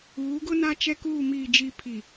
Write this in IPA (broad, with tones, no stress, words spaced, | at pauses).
uː˨˦ɡʊ˦ na˦t͡ʃɛ˦kuː˦˨ miː˨d͡ʒi˨ pʰi˨